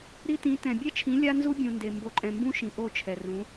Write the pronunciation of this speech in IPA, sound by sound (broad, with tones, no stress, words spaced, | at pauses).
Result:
ɾi˦tĩ˨˦tɛ̃˨ bʲɛ˦t͡ʃʰĩ˨˦ lʲa˦nzu˦bʲũ˨ nde˨ mbo˨ǃʼɛ̃˨mbũ˦ʃĩ˨ ʔo˦˨t͡ʃʰɛ˨rũ˨˦